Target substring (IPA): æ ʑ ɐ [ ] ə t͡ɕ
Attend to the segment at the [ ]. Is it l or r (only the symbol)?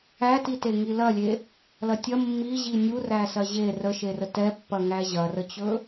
r